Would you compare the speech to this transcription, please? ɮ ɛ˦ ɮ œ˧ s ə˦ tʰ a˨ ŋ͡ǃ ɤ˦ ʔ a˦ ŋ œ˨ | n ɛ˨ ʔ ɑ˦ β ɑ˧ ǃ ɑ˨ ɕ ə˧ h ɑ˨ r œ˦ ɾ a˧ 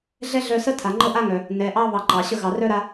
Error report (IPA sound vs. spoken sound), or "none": h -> ɣ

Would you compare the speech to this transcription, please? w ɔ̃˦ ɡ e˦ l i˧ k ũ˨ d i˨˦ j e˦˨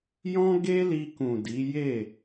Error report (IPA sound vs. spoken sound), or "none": w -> j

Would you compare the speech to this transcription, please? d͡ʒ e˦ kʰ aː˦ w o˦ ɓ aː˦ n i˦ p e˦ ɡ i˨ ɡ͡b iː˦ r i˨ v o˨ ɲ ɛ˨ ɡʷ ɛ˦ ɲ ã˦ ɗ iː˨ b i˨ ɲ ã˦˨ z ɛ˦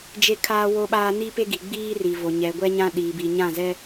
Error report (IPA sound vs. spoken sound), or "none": none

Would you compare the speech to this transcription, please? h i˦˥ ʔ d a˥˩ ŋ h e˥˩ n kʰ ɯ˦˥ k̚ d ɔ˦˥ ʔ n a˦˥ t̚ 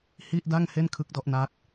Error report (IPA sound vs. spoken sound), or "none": i˦˥ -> i˥˩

